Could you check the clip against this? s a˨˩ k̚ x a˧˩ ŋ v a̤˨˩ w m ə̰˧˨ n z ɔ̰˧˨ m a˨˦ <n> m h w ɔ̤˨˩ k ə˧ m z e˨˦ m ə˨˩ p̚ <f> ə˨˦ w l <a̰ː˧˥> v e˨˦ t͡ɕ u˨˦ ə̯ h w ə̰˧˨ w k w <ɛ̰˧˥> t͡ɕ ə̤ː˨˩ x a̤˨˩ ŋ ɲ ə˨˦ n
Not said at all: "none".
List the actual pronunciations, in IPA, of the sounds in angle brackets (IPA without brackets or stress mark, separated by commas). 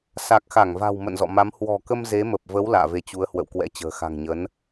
none, v, a̰ː˧˨, ɛ̰˧˥